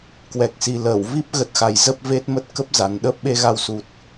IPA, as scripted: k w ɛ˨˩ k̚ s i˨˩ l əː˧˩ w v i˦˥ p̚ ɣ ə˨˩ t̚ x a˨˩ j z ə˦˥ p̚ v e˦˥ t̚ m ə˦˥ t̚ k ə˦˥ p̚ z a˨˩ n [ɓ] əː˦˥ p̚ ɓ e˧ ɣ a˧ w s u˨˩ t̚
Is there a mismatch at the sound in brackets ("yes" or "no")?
yes